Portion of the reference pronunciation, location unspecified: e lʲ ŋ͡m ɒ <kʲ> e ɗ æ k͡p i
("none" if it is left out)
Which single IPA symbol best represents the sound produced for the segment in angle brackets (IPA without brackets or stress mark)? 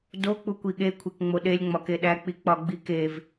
k